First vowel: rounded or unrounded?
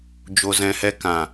rounded